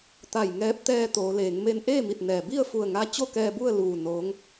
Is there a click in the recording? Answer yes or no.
no